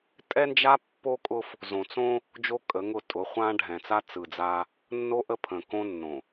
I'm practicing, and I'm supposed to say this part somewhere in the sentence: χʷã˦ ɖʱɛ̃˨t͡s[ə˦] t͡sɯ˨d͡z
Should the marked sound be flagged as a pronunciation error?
yes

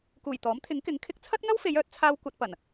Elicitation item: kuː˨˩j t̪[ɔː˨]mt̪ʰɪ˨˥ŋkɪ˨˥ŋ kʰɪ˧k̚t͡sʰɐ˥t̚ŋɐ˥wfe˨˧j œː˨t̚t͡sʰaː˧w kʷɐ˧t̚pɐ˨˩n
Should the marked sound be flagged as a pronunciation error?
yes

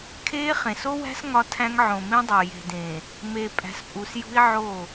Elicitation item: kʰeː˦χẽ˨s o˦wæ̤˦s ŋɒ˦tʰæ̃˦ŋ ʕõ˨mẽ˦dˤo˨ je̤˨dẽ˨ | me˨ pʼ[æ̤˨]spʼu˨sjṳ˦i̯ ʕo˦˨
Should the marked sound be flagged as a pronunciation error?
no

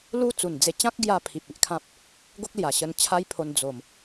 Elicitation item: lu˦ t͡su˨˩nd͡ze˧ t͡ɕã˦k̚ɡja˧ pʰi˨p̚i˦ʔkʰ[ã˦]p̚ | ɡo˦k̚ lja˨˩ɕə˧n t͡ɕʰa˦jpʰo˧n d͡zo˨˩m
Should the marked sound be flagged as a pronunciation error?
no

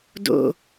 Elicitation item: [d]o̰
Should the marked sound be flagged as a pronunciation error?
no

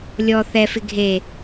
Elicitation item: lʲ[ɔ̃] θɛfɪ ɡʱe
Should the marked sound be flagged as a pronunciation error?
yes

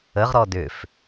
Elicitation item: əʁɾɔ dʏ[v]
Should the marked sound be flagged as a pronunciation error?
yes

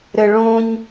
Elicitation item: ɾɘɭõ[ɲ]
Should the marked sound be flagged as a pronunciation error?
no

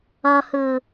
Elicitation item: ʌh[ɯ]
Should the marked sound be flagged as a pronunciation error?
no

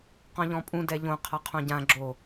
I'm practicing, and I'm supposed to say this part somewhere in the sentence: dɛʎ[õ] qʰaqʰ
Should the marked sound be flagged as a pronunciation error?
no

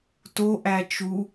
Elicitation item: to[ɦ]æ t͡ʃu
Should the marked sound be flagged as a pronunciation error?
yes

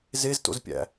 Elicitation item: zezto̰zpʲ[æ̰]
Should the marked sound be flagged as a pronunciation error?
no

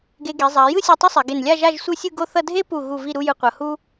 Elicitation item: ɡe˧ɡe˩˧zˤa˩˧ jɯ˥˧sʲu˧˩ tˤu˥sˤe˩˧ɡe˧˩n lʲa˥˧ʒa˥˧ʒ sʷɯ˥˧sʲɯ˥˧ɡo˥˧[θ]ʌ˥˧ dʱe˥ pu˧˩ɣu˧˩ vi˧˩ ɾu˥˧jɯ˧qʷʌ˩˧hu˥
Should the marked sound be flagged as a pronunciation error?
no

